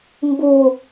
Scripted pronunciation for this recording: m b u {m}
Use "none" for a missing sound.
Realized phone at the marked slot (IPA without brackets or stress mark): none